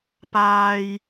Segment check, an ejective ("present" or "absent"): absent